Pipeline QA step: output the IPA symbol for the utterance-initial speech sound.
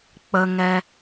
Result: k͡p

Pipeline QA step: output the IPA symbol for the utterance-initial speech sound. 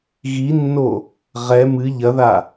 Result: ɣ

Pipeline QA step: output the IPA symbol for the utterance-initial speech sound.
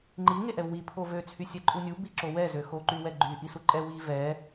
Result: ŋ͡ǃ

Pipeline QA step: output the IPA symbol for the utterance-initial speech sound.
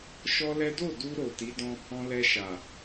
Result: ʃ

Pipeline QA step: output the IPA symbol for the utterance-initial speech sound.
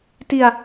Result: t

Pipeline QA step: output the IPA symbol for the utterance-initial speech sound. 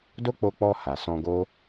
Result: d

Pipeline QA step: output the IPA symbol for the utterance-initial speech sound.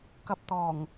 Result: k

